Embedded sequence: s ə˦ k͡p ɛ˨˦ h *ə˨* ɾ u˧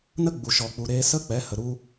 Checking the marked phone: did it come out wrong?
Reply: no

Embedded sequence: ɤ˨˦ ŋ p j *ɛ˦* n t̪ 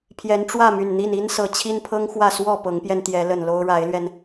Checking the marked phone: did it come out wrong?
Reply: yes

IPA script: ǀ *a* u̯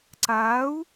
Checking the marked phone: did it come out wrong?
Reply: no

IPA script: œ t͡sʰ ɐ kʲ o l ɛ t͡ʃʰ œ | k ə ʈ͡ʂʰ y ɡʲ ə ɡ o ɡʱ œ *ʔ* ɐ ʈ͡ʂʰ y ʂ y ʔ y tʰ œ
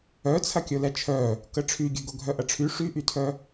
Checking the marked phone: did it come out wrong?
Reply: no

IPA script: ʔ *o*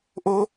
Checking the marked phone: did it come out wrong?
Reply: no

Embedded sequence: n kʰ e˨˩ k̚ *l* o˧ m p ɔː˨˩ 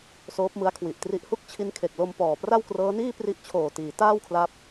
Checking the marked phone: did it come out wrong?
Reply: no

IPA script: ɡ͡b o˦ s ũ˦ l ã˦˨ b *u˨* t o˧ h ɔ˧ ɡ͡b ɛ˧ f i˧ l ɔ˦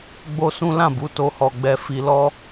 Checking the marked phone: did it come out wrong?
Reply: yes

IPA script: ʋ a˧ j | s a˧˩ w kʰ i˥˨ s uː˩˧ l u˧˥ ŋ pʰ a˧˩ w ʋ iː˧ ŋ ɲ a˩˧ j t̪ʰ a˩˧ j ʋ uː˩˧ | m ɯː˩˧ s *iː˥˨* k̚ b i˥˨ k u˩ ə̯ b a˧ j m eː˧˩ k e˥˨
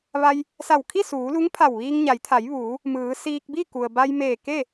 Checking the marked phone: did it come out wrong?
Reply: yes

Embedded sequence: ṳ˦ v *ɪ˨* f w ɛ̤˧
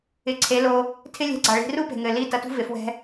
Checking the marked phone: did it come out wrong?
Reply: no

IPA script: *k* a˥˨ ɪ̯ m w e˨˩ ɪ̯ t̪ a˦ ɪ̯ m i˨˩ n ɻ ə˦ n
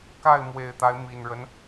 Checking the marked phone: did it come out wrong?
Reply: no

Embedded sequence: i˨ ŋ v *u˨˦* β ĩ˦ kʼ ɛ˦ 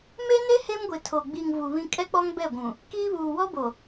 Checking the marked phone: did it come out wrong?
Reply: yes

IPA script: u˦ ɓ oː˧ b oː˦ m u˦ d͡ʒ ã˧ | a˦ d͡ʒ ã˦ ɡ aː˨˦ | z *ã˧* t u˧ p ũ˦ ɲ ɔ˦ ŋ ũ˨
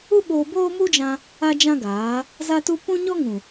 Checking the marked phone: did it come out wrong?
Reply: yes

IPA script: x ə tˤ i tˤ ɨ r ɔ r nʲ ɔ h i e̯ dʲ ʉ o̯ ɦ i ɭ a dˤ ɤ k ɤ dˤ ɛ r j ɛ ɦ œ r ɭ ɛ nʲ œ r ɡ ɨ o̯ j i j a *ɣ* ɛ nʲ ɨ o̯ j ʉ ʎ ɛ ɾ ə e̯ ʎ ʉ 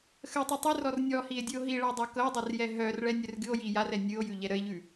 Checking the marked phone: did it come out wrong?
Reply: yes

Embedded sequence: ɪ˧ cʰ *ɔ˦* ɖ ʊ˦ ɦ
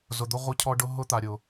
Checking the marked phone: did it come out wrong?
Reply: no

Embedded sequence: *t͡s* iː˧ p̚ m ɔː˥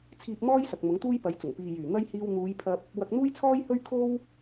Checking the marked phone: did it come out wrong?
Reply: yes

